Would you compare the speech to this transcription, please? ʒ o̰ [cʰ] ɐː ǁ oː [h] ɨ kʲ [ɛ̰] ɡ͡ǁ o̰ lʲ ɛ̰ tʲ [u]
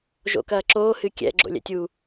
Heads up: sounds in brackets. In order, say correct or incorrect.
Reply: incorrect: k, correct, correct, correct

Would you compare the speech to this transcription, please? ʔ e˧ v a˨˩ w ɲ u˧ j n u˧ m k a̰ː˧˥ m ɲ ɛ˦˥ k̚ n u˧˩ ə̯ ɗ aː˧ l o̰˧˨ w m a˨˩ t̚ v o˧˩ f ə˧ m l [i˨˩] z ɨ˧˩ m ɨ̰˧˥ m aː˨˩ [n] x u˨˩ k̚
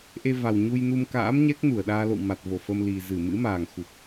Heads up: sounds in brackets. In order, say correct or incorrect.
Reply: correct, incorrect: ŋ

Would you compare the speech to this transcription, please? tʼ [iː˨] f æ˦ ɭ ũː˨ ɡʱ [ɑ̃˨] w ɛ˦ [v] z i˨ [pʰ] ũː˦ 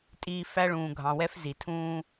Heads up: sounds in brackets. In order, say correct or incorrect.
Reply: correct, correct, incorrect: f, incorrect: tʰ

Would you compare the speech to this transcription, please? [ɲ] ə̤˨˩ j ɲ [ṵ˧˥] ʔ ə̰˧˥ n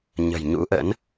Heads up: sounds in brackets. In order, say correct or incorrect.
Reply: correct, correct

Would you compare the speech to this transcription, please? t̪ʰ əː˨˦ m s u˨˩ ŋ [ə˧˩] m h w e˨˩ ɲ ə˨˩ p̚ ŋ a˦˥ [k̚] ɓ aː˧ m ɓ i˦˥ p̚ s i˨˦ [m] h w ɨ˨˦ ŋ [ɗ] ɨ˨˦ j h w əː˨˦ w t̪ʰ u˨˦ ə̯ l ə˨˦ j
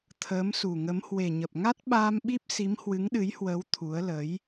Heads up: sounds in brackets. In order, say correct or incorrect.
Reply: incorrect: ə˨˦, incorrect: t̚, correct, correct

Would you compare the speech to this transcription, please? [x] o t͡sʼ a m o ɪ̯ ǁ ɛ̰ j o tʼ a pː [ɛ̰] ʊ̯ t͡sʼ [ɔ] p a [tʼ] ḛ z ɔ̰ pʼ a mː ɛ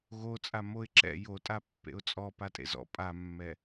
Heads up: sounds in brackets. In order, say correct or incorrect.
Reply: incorrect: ɣ, incorrect: ḛ, correct, correct

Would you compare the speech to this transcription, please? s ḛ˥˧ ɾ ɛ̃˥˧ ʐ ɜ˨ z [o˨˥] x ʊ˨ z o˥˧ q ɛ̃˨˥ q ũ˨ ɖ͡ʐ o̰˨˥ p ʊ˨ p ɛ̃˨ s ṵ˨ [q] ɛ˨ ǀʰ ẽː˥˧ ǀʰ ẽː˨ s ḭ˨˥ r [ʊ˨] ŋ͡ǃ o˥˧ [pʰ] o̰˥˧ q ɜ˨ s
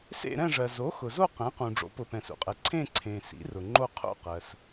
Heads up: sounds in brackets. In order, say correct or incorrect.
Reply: correct, incorrect: qʼ, correct, incorrect: qʰ

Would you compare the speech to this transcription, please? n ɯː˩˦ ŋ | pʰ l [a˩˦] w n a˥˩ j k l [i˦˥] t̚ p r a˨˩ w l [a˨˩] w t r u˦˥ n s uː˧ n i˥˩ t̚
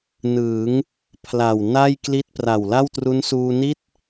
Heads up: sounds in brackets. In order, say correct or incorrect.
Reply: incorrect: a˨˩, correct, incorrect: a˥˩

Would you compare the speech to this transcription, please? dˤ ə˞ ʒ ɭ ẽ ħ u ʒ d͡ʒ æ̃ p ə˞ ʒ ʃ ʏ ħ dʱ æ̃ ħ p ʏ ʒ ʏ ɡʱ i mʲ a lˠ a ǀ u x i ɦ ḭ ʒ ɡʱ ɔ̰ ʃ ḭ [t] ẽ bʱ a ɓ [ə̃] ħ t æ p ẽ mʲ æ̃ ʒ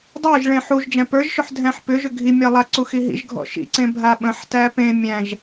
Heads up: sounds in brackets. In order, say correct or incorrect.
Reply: incorrect: ǀ, correct

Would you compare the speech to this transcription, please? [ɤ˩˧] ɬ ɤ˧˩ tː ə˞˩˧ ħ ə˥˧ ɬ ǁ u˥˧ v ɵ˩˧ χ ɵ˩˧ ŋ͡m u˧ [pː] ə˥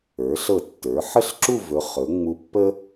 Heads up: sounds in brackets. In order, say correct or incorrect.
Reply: incorrect: ə˞˩˧, correct

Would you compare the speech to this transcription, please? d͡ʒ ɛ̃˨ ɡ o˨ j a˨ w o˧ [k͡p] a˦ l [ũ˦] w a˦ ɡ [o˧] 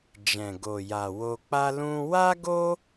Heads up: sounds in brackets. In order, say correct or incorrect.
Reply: correct, correct, incorrect: o˦

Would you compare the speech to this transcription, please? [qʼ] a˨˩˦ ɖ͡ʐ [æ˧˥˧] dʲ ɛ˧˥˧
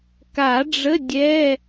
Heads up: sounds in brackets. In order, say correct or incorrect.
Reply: incorrect: k, incorrect: ə˧˥˧

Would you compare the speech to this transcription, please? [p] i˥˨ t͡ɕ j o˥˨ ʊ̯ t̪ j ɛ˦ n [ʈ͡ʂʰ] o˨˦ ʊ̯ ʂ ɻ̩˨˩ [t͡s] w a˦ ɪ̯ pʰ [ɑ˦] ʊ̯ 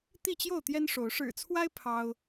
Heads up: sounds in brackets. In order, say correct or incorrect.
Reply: incorrect: t̪, incorrect: ʂ, incorrect: t͡sʰ, correct

